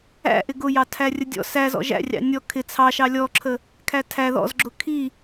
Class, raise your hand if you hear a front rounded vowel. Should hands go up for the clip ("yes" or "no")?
no